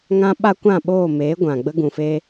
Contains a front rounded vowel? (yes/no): no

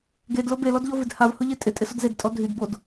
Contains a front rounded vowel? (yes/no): yes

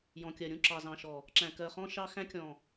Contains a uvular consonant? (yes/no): yes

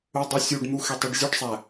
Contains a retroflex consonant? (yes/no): yes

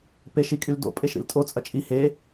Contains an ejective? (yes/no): yes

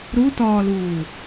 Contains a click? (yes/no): no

